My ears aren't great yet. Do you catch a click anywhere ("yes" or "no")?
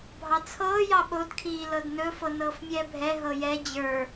no